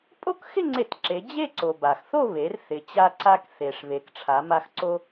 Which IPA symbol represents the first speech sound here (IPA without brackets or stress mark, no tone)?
pʼ